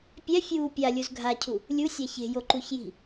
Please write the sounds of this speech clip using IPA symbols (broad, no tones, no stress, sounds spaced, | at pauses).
pʲ ɛ fʲ uː pʲ a lʲ u z ɡʱ a cʰ u | lʲ u sʲ a ç e̤ j o ǃ u ç j i̤